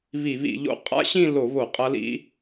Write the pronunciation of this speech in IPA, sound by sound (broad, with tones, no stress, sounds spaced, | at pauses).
β i˧˩˧ β ḭ˧˩˧ ʎ o̰˦˥ qʼ a̰˦˥ ɕ ĩ˥˧ l o˧˩˧ β o˧˩˧ qʼ ɐ˦˥ l ḭ˦˥